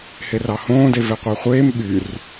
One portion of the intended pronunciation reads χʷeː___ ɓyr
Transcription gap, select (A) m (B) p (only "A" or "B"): A